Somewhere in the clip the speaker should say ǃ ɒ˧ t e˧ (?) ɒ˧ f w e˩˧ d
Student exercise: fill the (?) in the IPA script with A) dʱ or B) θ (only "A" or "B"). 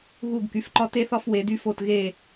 B